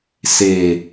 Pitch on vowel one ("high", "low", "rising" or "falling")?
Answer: low